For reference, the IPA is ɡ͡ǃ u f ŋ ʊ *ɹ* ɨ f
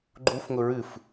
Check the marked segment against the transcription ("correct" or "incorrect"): correct